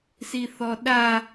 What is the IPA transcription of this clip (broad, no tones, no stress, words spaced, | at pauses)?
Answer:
siθɔɗa